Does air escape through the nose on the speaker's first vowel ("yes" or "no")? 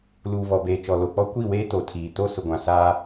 no